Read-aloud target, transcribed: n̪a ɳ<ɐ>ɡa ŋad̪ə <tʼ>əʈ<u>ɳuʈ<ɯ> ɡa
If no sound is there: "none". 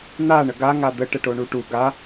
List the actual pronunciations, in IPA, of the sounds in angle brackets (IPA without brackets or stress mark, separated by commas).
ə, ʈ, o, u